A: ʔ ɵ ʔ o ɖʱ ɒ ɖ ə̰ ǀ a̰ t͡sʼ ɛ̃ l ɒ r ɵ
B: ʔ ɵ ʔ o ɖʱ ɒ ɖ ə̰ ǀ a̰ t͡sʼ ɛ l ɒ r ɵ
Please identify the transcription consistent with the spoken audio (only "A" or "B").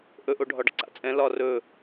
A